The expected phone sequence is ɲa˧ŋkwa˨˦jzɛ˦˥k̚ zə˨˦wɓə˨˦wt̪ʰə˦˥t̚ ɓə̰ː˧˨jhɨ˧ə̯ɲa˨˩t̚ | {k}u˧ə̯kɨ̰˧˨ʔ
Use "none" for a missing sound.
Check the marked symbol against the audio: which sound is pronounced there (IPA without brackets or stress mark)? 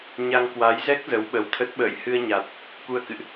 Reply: k